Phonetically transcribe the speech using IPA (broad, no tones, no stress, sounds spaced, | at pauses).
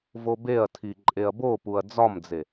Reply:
v o b e ɐ̯ tʰ i ǃʼ e ɐ̯ b o p u ɐ̯ d͡z ɒ m d͡z e